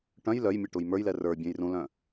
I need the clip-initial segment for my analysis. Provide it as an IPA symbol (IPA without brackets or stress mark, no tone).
ʈ